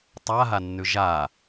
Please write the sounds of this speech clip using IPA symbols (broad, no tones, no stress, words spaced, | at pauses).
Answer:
tˤaɦanːʉ ʒa